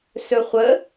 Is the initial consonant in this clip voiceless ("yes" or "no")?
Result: yes